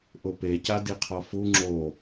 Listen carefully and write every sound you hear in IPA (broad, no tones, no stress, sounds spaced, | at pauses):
ʔ ʊ p e c a d i qʰ ɔ f u ŋ͡ǁ o